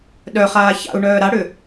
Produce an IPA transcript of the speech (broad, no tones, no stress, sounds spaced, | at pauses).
ɗ œ χ aː ç a̰ u̯ ɳ œː ɾ a ɽ ʏ